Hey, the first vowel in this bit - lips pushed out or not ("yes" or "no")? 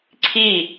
no